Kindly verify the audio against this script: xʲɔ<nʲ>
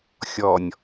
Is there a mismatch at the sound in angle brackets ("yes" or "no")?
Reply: no